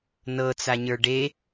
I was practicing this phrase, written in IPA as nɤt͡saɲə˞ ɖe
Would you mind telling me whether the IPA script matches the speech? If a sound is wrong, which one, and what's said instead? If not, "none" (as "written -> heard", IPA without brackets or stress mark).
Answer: none